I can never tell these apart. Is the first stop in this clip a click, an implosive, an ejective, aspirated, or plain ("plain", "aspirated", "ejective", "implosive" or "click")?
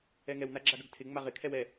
click